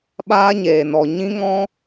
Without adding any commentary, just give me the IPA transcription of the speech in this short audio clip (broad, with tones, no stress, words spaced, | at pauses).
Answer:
ɓaː˦ɲeː˨nɔ˨ɲĩ˦ ŋɔ̃˦